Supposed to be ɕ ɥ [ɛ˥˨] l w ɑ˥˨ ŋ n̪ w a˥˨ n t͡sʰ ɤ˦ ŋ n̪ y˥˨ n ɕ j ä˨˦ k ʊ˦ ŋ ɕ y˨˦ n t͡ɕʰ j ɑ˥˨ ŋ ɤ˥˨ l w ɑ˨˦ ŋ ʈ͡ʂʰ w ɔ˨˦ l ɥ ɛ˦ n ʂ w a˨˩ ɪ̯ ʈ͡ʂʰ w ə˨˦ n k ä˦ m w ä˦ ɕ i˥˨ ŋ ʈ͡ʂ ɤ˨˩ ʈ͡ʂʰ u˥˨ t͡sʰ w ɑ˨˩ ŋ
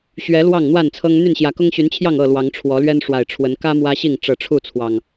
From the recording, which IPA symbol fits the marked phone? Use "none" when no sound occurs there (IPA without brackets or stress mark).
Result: ɛ˨˦